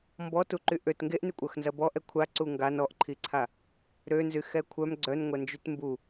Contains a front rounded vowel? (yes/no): yes